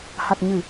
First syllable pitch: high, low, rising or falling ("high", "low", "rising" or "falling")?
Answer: low